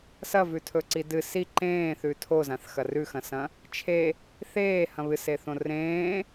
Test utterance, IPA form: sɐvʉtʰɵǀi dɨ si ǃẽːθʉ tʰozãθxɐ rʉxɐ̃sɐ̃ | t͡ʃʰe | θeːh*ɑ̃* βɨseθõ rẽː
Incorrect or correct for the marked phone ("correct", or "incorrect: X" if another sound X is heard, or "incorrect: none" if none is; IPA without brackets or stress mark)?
incorrect: ɐ̃